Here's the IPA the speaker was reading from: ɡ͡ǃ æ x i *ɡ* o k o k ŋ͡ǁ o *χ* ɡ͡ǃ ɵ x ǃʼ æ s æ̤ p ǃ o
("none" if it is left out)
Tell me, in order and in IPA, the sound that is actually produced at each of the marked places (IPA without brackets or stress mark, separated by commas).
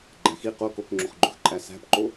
q, χ